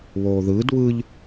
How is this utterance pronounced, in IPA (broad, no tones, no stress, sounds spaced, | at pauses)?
β oː ð ɯː d β ɯ ʎ